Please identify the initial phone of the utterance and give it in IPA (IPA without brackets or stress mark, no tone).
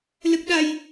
l